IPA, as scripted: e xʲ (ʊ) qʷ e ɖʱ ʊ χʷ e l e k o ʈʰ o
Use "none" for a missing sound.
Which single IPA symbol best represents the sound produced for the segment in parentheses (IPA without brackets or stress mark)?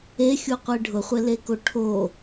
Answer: u